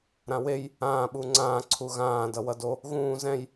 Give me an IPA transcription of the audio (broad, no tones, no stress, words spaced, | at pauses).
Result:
ɾãwej | ãː ɓuŋ͡ǀãː ǀʰuɣãː dʌwʌdo | ɣũː zɛ̃j